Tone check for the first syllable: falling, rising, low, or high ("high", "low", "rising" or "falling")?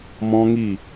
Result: high